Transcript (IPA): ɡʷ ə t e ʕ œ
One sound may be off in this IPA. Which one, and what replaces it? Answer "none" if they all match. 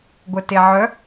ə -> œ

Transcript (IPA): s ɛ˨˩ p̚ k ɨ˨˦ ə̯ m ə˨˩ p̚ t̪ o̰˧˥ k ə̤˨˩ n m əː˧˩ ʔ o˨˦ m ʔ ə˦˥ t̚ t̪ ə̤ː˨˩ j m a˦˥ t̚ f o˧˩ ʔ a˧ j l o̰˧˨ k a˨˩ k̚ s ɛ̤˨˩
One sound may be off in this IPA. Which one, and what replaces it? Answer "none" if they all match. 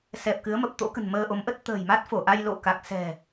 əː˧˩ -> əː˧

